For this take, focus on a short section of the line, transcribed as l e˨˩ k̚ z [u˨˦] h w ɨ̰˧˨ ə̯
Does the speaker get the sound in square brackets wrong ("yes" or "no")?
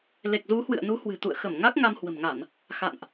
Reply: no